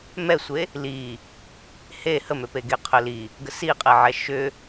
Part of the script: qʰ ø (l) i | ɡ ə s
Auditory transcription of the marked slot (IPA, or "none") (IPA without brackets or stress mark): l